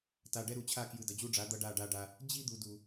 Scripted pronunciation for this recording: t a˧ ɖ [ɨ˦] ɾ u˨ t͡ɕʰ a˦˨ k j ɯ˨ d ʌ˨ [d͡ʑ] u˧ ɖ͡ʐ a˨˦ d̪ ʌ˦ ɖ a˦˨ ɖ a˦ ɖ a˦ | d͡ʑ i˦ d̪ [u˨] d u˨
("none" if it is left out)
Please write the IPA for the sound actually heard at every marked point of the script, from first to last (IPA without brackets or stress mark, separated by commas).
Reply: ɛ˦, d͡ʑ, u˨